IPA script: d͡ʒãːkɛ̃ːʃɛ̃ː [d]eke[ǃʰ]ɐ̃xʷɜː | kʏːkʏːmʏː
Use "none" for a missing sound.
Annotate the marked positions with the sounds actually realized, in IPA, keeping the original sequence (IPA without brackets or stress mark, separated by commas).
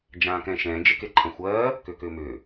d͡ʒ, ǃʰ